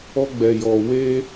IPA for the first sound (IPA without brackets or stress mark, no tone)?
ɔ